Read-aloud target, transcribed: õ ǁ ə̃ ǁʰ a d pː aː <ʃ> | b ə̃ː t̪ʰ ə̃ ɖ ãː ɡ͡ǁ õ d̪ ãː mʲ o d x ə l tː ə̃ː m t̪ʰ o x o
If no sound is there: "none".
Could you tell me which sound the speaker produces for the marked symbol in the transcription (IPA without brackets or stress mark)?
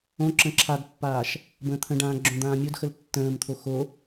ʃ